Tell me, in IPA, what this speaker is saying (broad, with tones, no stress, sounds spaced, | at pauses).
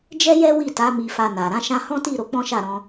d͡ʒ ɛ˦ j ɛ˦ w i˦˨ t a˨˦ m i˧ f a˧ n a˨ ɾ ã˨˦ ʃ ã˧ h ɔ̃˦ t i˦˨ ɾ o˧ k͡p ɔ̃˦ ʃ a˦˨ ɾ ɔ̃˧